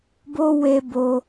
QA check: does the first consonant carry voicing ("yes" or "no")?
yes